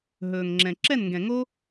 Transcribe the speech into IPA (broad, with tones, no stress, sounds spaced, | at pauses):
ɦ ɵː˨ ŋ ŋ͡ǁ ɛ̃˨ ǁ ɛ˦˨ n ŋ ɡ ɛ̃˨ ŋ o˦